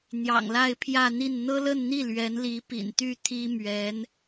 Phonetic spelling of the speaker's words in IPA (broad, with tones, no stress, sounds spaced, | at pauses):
n̪ j ɑ̰˨˩ ŋ l a˥˧ ɪ̯ pʰ j ä˥˧ n̪ i˥˩ n n̪ ɤ˥ l ə˥˧ n n̪ i˥˩ l ɥ ɛ˧˥ n l i˧˥ p ḭ˨˩ n t̪ y˥˩ t̪ʰ i˥ m ɥ ɛ˧˥ n